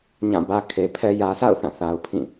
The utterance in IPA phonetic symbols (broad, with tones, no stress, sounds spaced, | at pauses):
ɲ ã˦˨ b ä˦ kʰ e˨ pʰ ɛ˦ j ä˨ s a̰˦˨ ʊ̯ θ ã˦˨ θ a˨ ʊ̯ pʰ ĩ˦˨